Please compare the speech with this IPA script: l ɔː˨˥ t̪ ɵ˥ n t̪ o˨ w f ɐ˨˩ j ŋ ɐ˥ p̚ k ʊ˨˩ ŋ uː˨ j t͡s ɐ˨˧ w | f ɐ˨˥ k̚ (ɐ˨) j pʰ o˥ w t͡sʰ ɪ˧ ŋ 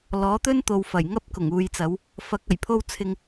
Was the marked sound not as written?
yes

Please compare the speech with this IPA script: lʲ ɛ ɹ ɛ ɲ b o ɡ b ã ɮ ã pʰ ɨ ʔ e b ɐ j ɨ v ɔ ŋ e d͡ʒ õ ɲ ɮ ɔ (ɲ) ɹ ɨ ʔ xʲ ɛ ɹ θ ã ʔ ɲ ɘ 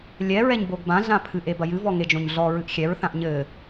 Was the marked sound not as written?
yes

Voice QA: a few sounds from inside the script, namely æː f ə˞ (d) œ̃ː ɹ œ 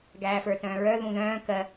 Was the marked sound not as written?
yes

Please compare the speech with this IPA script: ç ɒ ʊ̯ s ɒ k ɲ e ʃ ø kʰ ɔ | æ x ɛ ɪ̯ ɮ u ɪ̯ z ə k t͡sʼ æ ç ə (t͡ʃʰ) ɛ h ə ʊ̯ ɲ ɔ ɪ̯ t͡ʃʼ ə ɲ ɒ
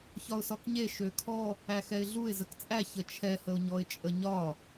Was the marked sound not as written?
no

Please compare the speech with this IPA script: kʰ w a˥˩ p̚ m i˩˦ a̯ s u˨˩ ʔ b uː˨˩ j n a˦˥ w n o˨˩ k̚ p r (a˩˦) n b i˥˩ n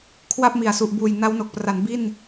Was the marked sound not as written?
no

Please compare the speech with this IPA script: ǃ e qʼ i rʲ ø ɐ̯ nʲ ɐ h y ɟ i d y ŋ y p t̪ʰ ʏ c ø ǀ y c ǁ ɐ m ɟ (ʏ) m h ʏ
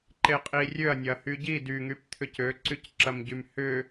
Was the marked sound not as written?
yes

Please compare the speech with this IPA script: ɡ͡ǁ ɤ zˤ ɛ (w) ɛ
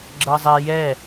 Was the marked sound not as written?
yes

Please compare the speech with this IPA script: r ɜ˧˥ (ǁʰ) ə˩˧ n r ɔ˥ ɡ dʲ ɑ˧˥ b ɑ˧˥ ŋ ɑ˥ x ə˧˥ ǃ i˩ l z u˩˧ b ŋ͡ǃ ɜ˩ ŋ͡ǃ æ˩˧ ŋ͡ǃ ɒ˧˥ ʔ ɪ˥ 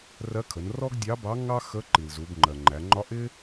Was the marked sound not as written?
yes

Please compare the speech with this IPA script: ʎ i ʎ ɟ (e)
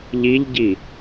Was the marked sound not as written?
yes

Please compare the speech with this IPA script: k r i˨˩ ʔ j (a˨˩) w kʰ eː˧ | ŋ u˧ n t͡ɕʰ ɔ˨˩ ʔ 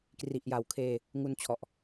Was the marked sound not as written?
no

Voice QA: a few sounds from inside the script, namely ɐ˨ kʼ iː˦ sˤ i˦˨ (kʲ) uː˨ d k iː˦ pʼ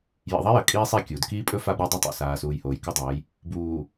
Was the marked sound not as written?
no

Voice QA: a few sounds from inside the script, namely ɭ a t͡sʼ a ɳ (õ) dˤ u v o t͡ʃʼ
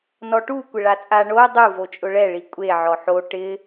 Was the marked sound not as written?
yes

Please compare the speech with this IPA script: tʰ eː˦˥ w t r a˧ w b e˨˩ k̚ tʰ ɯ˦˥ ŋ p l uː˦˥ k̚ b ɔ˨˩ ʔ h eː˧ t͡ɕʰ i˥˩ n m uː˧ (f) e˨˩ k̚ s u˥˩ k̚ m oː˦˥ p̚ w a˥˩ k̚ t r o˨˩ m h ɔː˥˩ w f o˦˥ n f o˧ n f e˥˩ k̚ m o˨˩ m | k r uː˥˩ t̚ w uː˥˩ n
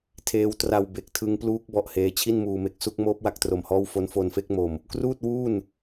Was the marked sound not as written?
yes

